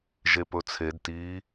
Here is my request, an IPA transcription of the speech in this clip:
ʒ e p ɵ t͡sʰ e d t i

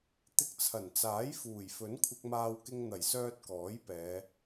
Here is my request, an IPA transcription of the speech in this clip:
t̪ ɪ˧ k̚ t͡sʰ ɐ˨˩ n t͡s aː˨˥ j f uː˨˩ j f ɵ˨˥ n kʷʰ ɪ˧ k̚ m aː˧ w k ɪ˧ ŋ n̪ ɐ˨˩ j s œː˧ t̚ k ɔː˨˥ j p ɛː˨˧

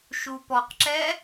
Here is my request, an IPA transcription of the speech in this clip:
ʃ u p ɔ q ǁ ɛ

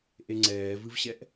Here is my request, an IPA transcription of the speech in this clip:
ʔ e ŋ͡ǀ ɛː v ɨ v ɕ ɛ ʔ

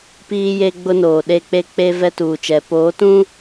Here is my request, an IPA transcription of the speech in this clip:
p iː˦ j e˦ ɡ͡b ʊ˦ n oː˨ ɗ e˦ k͡p e˦ k͡p e˦ v ɛ˦ t uː˨ t͡ʃ ɛ˨ p oː˨˦ t ũ˦

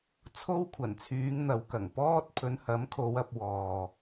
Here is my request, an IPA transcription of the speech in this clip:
t͡sʰ o˥ w kʷʰ ɐ˨˩ n t͡sʰ yː˨˧ ŋ n̪ ɐ˨˧ w k ɐ˨˩ ŋ p ɔː˥ t̚ pʰ ɵ˨˧ n h ɐ˨˥ m kʰ o˨˧ w ɐ˧ p̚ w ɔː˨

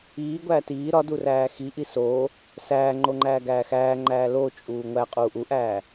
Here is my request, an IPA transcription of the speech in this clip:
iː ɡʷ æː t iː ɾ ɒ d u r æː x i ʔ i s o | s æː ŋ͡ǃ o ŋ͡ǃ æː ɡ æː x æː ŋ͡ǃ æː l o t͡ʃʼ uː ŋʷ æ qʼ uː ʔ u ʔ æː

